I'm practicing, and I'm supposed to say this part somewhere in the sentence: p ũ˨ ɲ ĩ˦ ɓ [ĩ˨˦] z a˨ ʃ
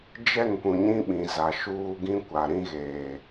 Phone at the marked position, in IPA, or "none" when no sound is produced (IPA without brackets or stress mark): ĩ˨